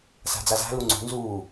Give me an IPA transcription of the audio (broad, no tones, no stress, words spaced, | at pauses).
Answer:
sa̤d͡zaza̤ luŋ͡ǀṳ nzuː